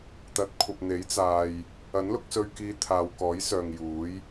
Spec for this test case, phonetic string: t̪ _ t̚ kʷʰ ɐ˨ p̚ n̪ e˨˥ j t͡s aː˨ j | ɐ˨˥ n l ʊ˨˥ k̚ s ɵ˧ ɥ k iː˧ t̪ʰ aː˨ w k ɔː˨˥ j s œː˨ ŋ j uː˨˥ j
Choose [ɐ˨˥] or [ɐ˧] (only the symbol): ɐ˨˥